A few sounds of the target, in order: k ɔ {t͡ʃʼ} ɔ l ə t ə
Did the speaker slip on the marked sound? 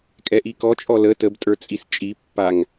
no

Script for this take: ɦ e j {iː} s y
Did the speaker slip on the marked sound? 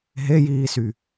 no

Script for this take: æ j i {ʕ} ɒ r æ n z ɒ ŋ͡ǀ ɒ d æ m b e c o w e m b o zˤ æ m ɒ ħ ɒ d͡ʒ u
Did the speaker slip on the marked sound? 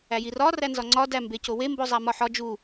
yes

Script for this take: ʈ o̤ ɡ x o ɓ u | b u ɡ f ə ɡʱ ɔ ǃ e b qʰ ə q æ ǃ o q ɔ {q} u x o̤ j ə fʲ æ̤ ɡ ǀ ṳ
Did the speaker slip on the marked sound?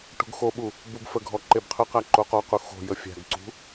no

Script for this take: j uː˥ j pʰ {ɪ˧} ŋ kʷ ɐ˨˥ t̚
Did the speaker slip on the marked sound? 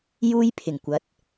yes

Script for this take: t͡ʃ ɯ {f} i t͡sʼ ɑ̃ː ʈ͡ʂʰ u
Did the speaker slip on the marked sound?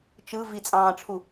yes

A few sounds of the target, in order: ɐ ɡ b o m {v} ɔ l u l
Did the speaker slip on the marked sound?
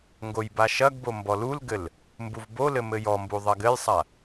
yes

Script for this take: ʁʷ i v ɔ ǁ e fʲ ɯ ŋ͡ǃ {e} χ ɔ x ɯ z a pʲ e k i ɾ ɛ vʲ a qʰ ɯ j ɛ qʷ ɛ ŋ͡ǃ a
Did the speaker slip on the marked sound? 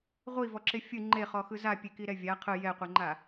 no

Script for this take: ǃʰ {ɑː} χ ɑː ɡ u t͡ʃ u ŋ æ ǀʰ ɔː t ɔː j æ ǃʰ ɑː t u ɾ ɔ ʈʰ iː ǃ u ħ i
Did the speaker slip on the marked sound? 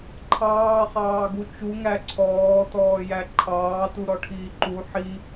no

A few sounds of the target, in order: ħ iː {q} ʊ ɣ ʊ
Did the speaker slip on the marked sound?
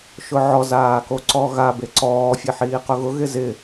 no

